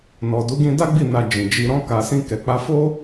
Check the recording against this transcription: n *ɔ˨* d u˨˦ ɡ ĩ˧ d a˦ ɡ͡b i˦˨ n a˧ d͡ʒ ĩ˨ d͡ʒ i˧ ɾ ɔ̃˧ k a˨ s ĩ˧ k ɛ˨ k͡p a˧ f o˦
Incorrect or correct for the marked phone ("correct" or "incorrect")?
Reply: correct